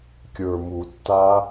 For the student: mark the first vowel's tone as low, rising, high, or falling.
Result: low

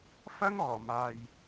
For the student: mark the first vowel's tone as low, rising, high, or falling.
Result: high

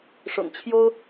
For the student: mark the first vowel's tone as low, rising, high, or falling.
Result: low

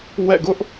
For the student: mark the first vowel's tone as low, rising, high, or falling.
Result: falling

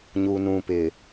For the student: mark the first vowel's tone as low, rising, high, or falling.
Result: low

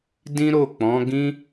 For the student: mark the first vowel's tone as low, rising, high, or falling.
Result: high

